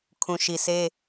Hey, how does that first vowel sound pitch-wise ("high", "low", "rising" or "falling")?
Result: low